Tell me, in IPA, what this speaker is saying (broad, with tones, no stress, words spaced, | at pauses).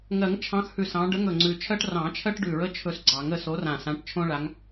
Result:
ŋɜ˨˩˦ŋt͡ʃʰɑ̃˨˦xhʉ˨˩s ɑ̃˨˦ ɖə˨˦ŋɵ˨˩ ŋ͡ǀʉ˨˩t͡ʃʰɜ˦ʈ rɑ̃˨˩˦t͡ʃʰɜ˦ʈɖʉ˨˩ɹə˦ t͡ʃʰɵ˦sɡ͡ǀɑ˨˩˦ŋə˨˦ so˨˦rã˨˩sã˨˦ʈ t͡ʃʰõ˦ɭa˨˦ŋ